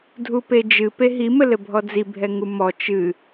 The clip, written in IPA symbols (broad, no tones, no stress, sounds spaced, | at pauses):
dʱ u p e d͡ʒ ɨ p e ɦ i m ɘ l ɘ bʱ ɔ d͡z i bʱ ɛ ŋ u m ɔ t͡ʃ ɨ